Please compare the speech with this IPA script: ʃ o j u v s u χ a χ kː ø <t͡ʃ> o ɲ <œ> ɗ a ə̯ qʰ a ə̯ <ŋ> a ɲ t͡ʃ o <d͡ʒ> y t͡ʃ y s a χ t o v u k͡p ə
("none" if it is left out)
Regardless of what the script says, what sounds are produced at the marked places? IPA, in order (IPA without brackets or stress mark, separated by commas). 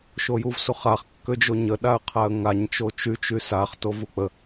d͡ʒ, ə, ŋ, t͡ʃ